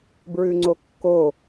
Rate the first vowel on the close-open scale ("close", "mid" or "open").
close